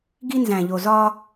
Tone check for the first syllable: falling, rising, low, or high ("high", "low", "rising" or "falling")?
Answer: high